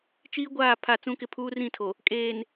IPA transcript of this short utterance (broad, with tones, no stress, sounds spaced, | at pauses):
t͡ʃ iː˦ ɡʷ aː˦˨ pʰ a˦˨ t͡s ũ˦ k ɪ˦ pʰ uː˦ r ĩ˦˨ tʰ o˨ | kʼ eː˨ n